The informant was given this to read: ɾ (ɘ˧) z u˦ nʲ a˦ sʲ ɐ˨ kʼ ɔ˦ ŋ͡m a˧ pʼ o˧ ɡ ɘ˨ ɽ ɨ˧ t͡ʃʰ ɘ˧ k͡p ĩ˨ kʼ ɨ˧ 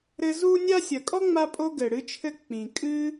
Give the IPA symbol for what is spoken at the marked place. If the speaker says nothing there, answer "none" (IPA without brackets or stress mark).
ɘ˧